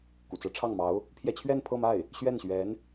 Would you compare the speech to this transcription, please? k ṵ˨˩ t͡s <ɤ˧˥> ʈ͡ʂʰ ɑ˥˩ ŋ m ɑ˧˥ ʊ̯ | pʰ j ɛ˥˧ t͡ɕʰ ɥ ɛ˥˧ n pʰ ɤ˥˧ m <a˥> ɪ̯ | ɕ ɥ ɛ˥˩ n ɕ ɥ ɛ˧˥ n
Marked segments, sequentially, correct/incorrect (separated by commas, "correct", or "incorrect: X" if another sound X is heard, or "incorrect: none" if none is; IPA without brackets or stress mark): correct, incorrect: a˥˩